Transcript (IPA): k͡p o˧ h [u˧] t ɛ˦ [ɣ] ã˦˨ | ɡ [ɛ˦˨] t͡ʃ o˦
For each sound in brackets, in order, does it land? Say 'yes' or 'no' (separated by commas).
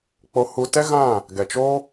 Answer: yes, yes, no